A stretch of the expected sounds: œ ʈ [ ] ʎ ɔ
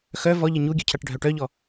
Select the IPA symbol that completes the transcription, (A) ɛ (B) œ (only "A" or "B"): B